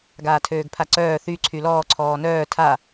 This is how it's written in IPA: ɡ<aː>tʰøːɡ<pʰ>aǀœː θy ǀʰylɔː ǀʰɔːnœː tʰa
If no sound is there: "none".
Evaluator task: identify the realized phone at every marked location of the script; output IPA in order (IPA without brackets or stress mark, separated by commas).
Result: aː, pʰ